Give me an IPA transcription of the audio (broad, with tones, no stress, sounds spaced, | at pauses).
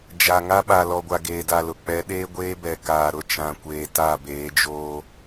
d͡ʒ a˨ ŋ a˦ ɓ a˨ l ɔ˨ ɡʷ a˨ ɡ eː˨ d a˨ l ʊ˨ k͡p ɛ˨˦ ɗ eː˦ ɡʷ eː˦ b ɛ˨ k aː˨ ɾ ʊ˦ t͡ʃ ã˨ kʷ eː˨ t a˦˨ b eː˨˦ d͡ʒ oː˦